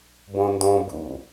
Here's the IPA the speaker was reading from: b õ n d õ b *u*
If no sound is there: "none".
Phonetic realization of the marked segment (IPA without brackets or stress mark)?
ṵ